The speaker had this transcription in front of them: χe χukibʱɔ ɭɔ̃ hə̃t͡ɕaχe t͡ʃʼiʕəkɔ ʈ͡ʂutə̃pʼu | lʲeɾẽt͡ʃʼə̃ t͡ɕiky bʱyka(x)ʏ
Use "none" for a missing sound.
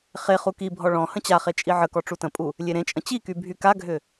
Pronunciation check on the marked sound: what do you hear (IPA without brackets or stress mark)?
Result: ɡʱ